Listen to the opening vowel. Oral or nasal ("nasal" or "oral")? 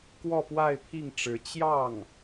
oral